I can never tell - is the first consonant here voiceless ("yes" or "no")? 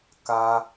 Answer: yes